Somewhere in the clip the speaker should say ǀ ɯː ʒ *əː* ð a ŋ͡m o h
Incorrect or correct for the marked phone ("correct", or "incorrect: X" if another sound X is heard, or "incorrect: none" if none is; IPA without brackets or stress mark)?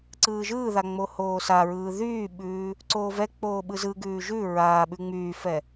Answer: incorrect: ɯː